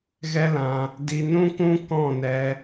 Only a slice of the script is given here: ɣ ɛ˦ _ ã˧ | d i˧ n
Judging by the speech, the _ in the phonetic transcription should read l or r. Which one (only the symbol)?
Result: l